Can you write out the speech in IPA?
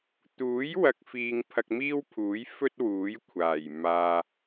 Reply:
t̪ uː˨˥ j w ɐ˨ k̚ f iː˨ ŋ pʰ ɐ˧ k̚ m iː˥ w pʰ uː˨˥ j f ɵ˥ t̚ w uː˨˥ j kʷʰ aː˨˩ j m aː˧

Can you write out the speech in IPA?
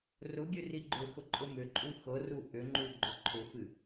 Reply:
r ʊ ɡʲ ɨ r i ɡ͡ǃ ʏ x ʊ ǃʼ ʊ m ʏ ǃʼ u x ɤ r u ʔ ʏ ŋ͡ǃ u ɡ͡ǃ o ǃʰ ʊ f ɨ

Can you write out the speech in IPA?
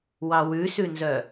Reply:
w ɑ w ʉ s ʉ n z œ

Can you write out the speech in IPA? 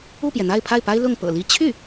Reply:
u˥˩ p j ɛ˩ n̪ a˥˧ ɪ̯ pʰ a˥˩ ɪ̯ p a˥ ɪ̯ l ʊ˥˩ ŋ p ɤ̰˨˩ l i˥ t͡ɕʰ y˥˩

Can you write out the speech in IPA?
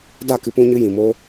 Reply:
d a˦˨ k ɨ˧ p ũ˧ ɲ ɨ˧ j ĩ˨ m o˦

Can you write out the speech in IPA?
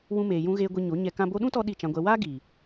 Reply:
w ũ˧ m eː˨ j ũ˧ ɣ eː˧ ɡʷ i˧ ɲ o˨˦ ɲ ɛ˧ k ã˦ b o˧ ɗ ũ˦ t ɔ˧ ɗ i˦˨ t͡ʃ ã˧ ɡʷ ɛ˧ w aː˦ ɡ iː˨

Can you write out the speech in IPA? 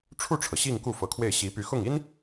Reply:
ʈ͡ʂʰ u˥˩ ʈ͡ʂʰ ɤ˩ ɕ i˥˧ ŋ k u˥˩ f ɤ˧˥ kʰ w e˥˩ ɪ̯ ɕ i˧˥ p y˧˥ x ʊ˥˩ ŋ i˥ n

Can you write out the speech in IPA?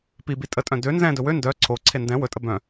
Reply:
p i b i tʼ ə tʼ œ̃ d ø n z ɛ̃ d ɵ w ø n d œ ǀʰ o ǀʰ e n d ɛ̃ w ɵ tʼ ə b œ̃

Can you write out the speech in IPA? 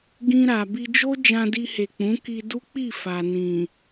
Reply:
ɡ ĩ˧ ɾ a˨ b i˧ d͡ʒ o˦ d͡ʒ ã˧ d i˧ h e˨ k͡p ũ˨˦ k i˧ d u˦ k͡p i˦˨ f a˨ n ĩ˨

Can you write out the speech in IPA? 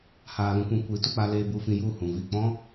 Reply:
h aː˨ l ũ˧ kʷ ĩ˧ kʷ i˨˦ t u˧ k͡p a˧ l eː˧ b u˧ f ĩ˧ j u˦˨ h ũ˨ v i˦˨ k͡p ɔ̃˦

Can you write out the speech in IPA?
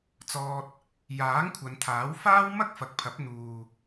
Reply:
t͡s ɔː˥ t̚ | j aː˨˥ ŋ kʷʰ ɐ˨˧ n t̪ʰ aː˨˥ w f aː˥ w m ɐ˥ k̚ f ɐ˨ k̚ pʰ ɐ˨˥ p̚ n̪ uː˧

